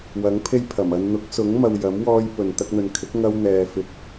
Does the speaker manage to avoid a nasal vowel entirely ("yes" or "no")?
yes